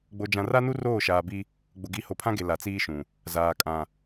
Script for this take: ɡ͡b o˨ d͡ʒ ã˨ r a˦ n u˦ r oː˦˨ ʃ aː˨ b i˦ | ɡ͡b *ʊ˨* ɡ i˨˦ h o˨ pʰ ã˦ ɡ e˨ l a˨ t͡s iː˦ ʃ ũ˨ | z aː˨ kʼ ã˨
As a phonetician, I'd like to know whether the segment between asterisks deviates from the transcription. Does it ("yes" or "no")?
no